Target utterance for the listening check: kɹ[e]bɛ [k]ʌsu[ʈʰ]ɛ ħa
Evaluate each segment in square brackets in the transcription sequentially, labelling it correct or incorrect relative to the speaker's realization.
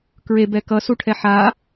correct, correct, correct

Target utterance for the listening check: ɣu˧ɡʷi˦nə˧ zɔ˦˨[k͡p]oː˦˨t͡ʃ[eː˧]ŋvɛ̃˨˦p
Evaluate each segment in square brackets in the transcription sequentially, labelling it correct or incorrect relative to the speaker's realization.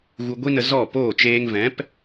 incorrect, correct

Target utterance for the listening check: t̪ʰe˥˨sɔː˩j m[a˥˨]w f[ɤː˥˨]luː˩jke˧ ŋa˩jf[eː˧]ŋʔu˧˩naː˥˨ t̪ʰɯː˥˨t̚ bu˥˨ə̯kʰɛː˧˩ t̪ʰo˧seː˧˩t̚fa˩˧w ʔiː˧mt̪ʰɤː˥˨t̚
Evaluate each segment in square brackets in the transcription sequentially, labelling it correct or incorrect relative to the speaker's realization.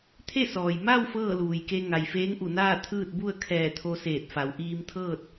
correct, correct, incorrect

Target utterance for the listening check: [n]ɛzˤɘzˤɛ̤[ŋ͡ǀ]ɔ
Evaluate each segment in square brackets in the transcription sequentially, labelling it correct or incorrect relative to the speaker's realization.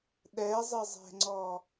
incorrect, correct

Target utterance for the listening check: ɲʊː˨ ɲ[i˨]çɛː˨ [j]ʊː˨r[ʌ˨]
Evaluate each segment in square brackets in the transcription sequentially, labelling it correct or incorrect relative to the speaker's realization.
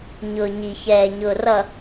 correct, incorrect, correct

